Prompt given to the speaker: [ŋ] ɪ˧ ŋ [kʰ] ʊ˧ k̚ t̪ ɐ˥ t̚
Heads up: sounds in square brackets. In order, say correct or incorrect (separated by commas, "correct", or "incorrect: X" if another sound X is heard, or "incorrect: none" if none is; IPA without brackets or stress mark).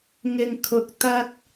correct, correct